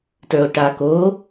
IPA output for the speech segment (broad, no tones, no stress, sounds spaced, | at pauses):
t ə˞ o̯ ʈ a k o